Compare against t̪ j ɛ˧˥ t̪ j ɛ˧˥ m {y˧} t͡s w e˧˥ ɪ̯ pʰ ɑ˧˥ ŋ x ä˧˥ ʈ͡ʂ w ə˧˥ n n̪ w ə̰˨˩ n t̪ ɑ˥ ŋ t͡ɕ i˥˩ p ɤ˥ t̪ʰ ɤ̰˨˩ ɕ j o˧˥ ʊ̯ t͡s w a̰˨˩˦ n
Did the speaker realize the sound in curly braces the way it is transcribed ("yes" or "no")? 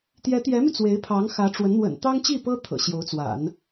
yes